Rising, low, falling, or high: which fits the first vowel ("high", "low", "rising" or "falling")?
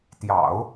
low